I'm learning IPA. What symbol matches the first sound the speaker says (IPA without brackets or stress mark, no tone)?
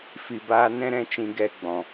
f